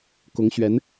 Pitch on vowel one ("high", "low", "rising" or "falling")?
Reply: rising